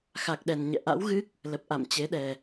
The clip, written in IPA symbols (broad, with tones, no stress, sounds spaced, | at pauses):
x a˨˩ k̚ ɗ ɛ˨˩ n ɲ ɛ̰˧˨ ʔ a̰˧˥ w ɣ ɨ˦˥ k̚ | l ə˨˩ p̚ ʔ a̰˧˨ m t͡ɕ e˨˦ ɗ ɛ˨˩